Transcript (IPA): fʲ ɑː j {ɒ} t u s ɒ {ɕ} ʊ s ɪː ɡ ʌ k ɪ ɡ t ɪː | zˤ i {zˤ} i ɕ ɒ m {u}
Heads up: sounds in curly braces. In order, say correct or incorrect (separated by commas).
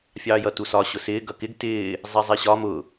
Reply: incorrect, correct, correct, incorrect